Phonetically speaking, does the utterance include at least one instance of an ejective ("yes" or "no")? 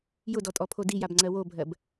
yes